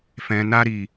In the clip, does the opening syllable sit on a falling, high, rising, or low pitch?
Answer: low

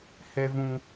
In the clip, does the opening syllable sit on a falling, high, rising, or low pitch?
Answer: high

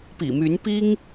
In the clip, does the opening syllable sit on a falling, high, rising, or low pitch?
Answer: low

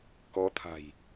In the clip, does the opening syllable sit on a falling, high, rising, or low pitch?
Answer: rising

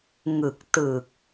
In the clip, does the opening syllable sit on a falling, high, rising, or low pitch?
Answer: low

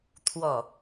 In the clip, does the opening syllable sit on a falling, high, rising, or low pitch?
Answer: falling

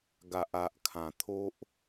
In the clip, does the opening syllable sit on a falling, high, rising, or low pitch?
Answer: low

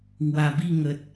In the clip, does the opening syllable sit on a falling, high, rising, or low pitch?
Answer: low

